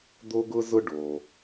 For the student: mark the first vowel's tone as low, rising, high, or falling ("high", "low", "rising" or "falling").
high